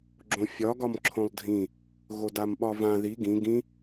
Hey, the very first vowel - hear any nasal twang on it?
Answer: yes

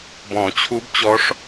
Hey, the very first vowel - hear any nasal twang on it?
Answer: yes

